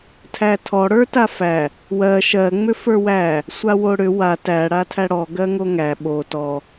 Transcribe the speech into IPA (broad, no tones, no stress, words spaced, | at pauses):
tʰætʰɔ ɽə˞tafæ | wɜ ʃɜ ŋ͡mʏfə˞wæ | sʷawoɽʏ wa tæ ɽatʰæɽɔ ɡɜŋoŋæ ɓo tɔ